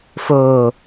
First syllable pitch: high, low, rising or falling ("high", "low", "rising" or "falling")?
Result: low